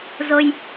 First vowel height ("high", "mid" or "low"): mid